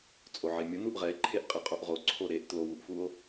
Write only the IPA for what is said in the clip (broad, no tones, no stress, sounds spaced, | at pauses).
t͡sʼ o ʕ e mʲ ʊ n u ʔ ʁ ɛ e̯ ǃʰ e ʔ qʼ e qʼ o ʔ ʁ o ǀʰ o ɾ e ʔ t l o w u ʔ f u o̯